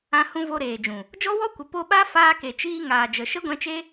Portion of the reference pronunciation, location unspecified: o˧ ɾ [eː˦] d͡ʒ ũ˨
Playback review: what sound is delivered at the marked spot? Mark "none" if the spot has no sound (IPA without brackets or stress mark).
eː˨